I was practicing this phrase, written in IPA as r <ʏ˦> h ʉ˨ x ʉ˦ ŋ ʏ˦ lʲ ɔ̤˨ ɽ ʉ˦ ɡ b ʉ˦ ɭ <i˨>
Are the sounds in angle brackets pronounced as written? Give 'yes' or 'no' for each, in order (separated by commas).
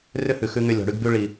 yes, yes